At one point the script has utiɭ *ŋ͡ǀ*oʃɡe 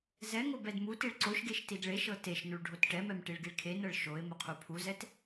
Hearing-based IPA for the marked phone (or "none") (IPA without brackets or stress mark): ǀ